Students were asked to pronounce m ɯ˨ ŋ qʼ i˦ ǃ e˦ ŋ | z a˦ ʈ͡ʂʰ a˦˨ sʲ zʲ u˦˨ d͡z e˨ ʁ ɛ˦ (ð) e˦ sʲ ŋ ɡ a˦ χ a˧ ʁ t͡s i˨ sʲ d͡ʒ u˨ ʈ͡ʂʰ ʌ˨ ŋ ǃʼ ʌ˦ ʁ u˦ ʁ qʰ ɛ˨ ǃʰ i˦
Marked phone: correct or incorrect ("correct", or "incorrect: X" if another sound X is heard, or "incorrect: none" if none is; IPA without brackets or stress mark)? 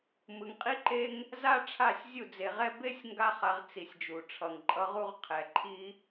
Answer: incorrect: b